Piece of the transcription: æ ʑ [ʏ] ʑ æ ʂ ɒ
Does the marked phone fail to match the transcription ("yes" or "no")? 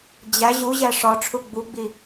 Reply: yes